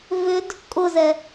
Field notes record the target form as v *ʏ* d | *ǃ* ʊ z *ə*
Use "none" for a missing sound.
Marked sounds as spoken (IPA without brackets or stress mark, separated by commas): ʏ, kʼ, ɛ